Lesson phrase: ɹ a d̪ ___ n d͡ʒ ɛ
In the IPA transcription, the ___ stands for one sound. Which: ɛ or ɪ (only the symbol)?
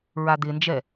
ɪ